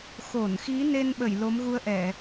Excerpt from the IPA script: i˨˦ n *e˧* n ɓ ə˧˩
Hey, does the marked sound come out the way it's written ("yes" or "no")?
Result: yes